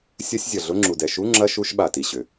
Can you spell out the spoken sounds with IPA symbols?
sʲ ɐ˧˥˧ sʲ zʲ ɐ˩ ɮ ʊ˧˥˧ ŋ͡ǁ u˩ d ɛ˩ ʃ u˧˥˧ ŋ͡ǁ ɐ˧˥˧ ʃ u˧˥˧ ʃ ɓ a˩ t i˩ ɕ ʏ˩

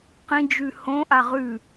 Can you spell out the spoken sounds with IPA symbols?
q ĩ d͡ʒ ʉ h õ ʔ a ʁ ʉ

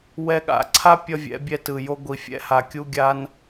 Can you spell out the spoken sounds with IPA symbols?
w ɛ˧ ɠ a̰˨ ǀʰ a˦ pʲ ʌ˦ vʲ ɛ̰˨˦ bʲ ɛ˧ t ɯ˨ j o˧ ɡʷ i˨ fʲ ɛ̰˧ h a˨ kʲ u˧ ɡʲ a˧ n

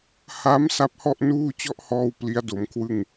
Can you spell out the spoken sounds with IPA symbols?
h a˦˥ m s a˦˥ p̚ h ɔ˥˩ ʔ n uː˥˩ t͡ɕ ɔ˥˩ ʔ h ɔː˧ w p l i˦˥ a̯ d o˩˦ m kʰ w ɯ˥˩ ŋ

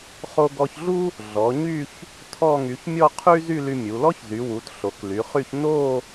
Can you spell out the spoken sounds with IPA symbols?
χ o˧ ɡ ɔ˧ ç ɮ u˥ | ɮ ɔ˩˧ ɲ y˥˧ ç | tʰ ɔ˥˧ ŋ y˩˧ ç mʲ ɔ˥˧ qʰ y˥ z y˥˧ l y˧ mʲ u˩˧ l ɔ˥ ç z y˩˧ w u˩˧ t ɬ o˩˧ k l y˩˧ χ y˥˧ ç n o˥˧

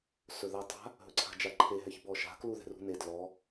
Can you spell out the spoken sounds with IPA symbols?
s ɵ ð a tˤ a̤ | ɦ ɵ ǀʰ a̤ d͡ʒ a ǃʰ e ɦ ɛ ç b ɔ ʃ a̤ k l u ð ɛ̤ r ṳ n e d l ɔ

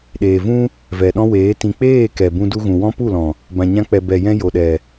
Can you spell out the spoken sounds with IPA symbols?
ɗ eː˨ v ũ˦ | v ɛ˨ ɗ ɔ̃˦ w eː˨˦ t ĩ˨ k͡p eː˦˨ k ɛ˨ b ũ˧ d u˧ ɣ ũ˨ w ɔ̃˦ p u˦˨ l ɔ̃˨ | b ã˨ ɲ ã˧ k͡p ɛ˨ b ɛ˨ j ɛ̃˧ j o˨ ɗ ɛ˨

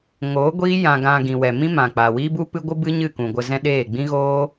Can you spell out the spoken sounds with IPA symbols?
ŋ oː˨˦ ɡʷ iː˦ j ã˧ ɡ ã˧ ɡ ĩ˨ w ɛ˨ m ĩ˦ m ã˨ k͡p a˨ w iː˦ b u˦ p ɨ˦ ɡʷ ɨ˦ b ɨ˦ ɲ ɨ˦˨ k ũ˨ ɡʷ ə˧ z ɛ̃˦ ɗ eː˦˨ ɡ͡b ĩ˦ ɣ oː˦

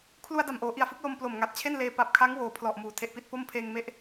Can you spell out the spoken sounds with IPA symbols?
kʰ l u˧ a̯ d a˨˩ m ʔ oː˩˦ ʔ i˨˩ a̯ f ɯ˦˥ k̚ l o˧ m p l o˨˩ m ŋ a˨˩ t̚ t͡ɕʰ e˥˩ n l eː˧ p a˨˩ p̚ kʰ a˦˥ ŋ w oː˨˩ pʰ l ɔ˨˩ ʔ m uː˩˦ tʰ e˨˩ ʔ p i˥˩ t̚ p o˥˩ m pʰ eː˧ ŋ m e˦˥ ʔ

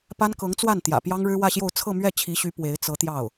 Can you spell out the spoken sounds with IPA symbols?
p a˥ n k ɤ˧˥ ŋ t͡s w a˥˩ n t̪ j ä̰˨˩ p j ɑ˥ ŋ ɻ ɻ̩˥ w ä˥˧ ɕ j o˥˧ ʊ̯ t͡sʰ ɤ˥˧ m ɥ ɛ˥˩ t͡ɕʰ i˧˥ ɕ y˧˥ p w e˧˥ ɪ̯ t͡s ɤ˧˥ t̪ j ɑ˥˩ ʊ̯

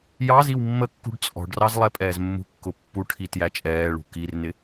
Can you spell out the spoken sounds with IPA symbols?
j ɑ z i w mː ə kː ṳ ɖ t͡sʼ ɔ̤ ɖ r ɑ z lˠ ɛ pʼ ɛː z mː ṳ kː ʊ pː u ʈʰ i t j æ t͡ʃʼ ɛː ɭ ṳ k i r n ɪ

